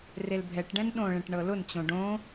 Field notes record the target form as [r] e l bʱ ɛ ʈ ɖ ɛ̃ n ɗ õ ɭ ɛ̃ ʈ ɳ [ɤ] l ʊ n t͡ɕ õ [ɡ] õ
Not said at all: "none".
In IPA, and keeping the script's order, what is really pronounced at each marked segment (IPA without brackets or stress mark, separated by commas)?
r, ɤ, ɖ